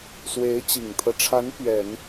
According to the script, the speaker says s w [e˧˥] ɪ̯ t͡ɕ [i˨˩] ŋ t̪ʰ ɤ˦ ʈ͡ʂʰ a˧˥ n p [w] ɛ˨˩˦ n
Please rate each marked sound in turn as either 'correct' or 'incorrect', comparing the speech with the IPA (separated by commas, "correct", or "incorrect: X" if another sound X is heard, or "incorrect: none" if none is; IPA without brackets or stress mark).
correct, correct, incorrect: ɥ